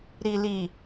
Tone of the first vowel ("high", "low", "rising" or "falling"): low